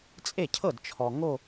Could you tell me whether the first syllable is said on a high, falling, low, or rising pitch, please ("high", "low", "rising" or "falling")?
falling